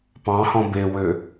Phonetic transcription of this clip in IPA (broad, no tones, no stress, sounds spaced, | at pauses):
p ɑ̃ h ɔ̃ b e w ø